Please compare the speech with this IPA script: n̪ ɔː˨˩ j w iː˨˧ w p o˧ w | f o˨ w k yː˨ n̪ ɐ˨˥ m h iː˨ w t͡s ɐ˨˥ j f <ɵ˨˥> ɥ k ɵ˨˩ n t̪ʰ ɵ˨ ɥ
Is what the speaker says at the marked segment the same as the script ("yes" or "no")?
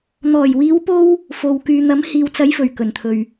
no